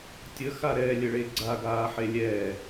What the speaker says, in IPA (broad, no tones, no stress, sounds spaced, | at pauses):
tʲ ə x a ɾ ɛː lʲ ə ɭ e ɡ͡ǀ a ɡ aː ħ e lʲ ɛː